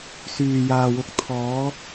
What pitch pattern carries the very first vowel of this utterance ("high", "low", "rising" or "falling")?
low